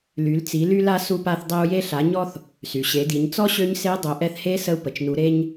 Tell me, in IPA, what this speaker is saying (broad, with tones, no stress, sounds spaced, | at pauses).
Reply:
l y˩˧ l t͡s i˩˧ l y˧ l a˧ s u˧ p a˧ θ dˤ e˧ u̯ j e˧ ɬ a˩˧ ɲ ɔ˧ θ | s y˩ ɕ e˩˧ d i˩˧ ɲ t͡s ɔ˥ ɕ ø˧˥ ɲ s e˧˥ dˤ œ˩˧ ʔ ɛ˧ θ h e˧˥ s ə˧ u̯ p ə˩ t͡ʃ n u˩˧ ɾ e˧ ɲ